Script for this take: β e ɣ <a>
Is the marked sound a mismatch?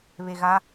no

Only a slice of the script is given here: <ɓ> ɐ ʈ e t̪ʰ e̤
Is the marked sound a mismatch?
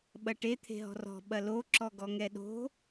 no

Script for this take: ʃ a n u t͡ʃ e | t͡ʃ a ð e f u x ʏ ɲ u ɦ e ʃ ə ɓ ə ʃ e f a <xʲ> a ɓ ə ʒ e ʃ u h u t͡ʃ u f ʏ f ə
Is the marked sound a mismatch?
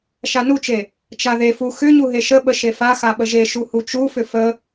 yes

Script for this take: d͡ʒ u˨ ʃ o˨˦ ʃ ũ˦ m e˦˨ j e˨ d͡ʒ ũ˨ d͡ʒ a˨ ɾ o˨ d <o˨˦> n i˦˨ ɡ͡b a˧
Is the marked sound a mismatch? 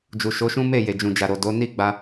no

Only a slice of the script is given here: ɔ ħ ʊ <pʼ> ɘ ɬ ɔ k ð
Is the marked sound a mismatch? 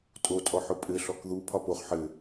no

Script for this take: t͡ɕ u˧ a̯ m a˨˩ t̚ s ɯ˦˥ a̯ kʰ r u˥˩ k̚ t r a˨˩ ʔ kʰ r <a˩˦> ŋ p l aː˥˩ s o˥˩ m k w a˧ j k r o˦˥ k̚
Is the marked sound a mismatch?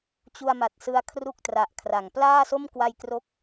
no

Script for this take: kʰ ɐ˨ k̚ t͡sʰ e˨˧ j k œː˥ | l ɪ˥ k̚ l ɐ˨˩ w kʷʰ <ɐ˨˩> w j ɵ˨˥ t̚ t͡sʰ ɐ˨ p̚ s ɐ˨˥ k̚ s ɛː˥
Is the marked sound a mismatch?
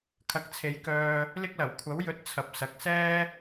yes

